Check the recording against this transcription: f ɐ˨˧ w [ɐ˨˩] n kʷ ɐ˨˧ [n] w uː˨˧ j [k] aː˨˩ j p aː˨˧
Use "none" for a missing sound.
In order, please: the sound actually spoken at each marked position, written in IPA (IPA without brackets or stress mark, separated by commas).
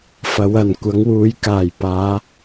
ɐ˨˩, ŋ, k